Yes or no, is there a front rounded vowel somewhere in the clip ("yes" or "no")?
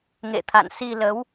no